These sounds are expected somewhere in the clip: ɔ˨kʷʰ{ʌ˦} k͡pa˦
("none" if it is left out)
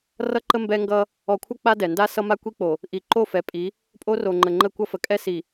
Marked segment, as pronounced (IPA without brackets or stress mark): ʌ˦